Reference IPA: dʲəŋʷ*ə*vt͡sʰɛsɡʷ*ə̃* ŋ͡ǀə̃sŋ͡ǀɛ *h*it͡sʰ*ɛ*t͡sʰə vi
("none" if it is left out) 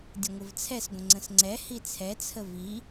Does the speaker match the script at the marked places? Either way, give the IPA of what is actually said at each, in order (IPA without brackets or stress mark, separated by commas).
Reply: ə, ə̃, h, ɛ